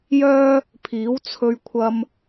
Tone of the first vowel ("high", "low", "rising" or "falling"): high